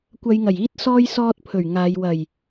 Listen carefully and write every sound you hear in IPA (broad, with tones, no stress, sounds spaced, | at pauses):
kʷ ɐ˨˧ j ŋ ɐ˨˩ j iː˧ t̚ s ɔː˧ j s ɔː˧ t̚ pʰ ɵ˨˩ ɥ ŋ aː˨˧ j w ɐ˨˩ j